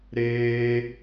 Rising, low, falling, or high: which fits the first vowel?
high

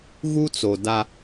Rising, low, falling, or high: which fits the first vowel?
high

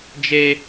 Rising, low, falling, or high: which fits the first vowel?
high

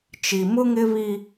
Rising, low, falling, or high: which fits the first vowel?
low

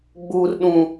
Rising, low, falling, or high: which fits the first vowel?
high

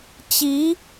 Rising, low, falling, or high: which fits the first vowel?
rising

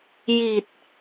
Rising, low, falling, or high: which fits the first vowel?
low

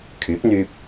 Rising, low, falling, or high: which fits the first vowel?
rising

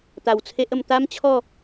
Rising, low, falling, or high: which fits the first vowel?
low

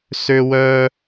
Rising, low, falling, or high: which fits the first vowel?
high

